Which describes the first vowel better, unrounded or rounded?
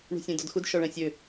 rounded